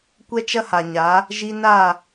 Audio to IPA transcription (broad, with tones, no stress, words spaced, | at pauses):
kʷɛ˦t͡ʃɐ˦ha˨ɲa˨˦ | ʒi˧na˦˨